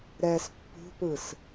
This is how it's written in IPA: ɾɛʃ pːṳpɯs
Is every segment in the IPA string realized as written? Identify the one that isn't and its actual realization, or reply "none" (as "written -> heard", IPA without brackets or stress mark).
ʃ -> s